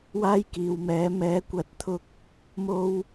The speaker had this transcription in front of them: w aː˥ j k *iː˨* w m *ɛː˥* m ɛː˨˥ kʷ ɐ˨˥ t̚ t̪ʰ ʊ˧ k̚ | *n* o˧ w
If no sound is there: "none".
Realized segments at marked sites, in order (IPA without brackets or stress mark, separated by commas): iː˨, ɛː˨˥, m